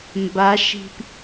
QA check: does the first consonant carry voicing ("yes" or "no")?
yes